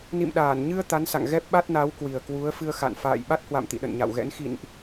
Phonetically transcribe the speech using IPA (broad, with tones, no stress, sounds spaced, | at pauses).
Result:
n ḭ˧˨ m ɗ aː˧˩ n ɲ ɨ˧ ə̯ t̪ a˨˦ n s a̰˧˨ ŋ ɣ ɛ˦˥ p̚ ɓ a˦˥ t̚ n a˨˦ w k w i˨˩ ə̯ k w u˨˦ ə̯ f ɨ˧ ə̯ x a̰˧˨ n f a̰ː˧˨ j ɓ a˦˥ t̚ h w a̰˧˨ m t̪ ḭ˧˨ ɗ ə̰˧˨ n ɲ a̰˧˨ w ɣ ɛ̰˧˥ n x ḭ˧˨ n ʔ